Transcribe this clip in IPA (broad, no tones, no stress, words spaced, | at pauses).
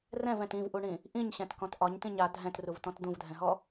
rɛ̃vɛ̃t ĩvʔuɳĩ | ʔĩɲɕɛ̃tkɔ̃t ʔɒɲtĩɲ a dʱɛ̃truvtɔ̃t d̪ũvdʱɛ̃ɦɔ